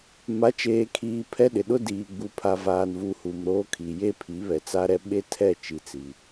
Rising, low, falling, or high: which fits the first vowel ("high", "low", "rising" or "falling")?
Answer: rising